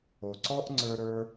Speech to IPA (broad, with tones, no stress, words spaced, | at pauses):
o˨ǀɔ˦ʔŋ͡ǀə˞˧ ɾə˞˦